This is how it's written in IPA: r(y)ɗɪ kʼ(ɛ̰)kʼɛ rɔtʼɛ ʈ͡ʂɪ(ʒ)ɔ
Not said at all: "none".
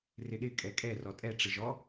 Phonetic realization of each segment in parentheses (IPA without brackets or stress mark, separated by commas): ɪ, ɛ, ʒ